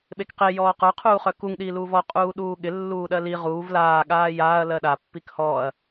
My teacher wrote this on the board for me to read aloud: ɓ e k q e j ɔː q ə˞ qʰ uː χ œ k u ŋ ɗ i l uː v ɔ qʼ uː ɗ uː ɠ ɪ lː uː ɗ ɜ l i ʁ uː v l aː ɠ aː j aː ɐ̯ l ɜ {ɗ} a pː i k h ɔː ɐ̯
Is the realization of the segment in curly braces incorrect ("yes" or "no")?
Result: no